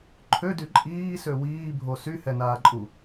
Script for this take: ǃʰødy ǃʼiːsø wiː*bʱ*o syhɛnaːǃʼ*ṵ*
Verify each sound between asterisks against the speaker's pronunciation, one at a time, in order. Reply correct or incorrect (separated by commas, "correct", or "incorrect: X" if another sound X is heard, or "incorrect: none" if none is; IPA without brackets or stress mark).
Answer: correct, incorrect: u